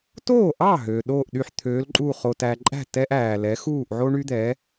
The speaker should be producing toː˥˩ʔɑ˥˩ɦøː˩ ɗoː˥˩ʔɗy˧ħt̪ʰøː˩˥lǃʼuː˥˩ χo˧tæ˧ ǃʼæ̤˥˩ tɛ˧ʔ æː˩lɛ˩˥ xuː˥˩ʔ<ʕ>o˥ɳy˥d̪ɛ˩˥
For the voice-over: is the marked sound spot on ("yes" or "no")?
yes